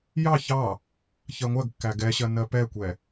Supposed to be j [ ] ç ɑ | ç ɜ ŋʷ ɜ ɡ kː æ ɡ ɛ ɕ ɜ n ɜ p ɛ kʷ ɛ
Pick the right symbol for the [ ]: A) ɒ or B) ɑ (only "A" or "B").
B